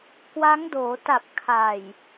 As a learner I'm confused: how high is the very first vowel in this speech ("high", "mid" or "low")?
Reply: low